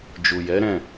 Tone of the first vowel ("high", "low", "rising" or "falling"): low